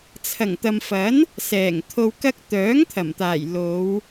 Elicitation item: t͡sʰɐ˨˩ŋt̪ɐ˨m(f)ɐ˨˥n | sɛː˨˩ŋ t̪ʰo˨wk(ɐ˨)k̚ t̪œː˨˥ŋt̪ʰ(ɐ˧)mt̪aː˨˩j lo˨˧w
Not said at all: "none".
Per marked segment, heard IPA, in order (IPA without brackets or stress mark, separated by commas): f, ɐ˧, ɐ˨˩